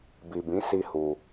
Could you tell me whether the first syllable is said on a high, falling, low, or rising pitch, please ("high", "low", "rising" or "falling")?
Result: low